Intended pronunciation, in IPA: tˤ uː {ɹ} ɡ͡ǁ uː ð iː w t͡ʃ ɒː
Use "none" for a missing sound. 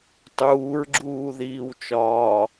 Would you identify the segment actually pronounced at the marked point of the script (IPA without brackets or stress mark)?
ɹ